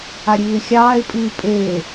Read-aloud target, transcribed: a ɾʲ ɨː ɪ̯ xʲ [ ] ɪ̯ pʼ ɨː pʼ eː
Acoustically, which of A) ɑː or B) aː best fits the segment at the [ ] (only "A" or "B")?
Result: A